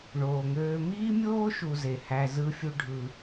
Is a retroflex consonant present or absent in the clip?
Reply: present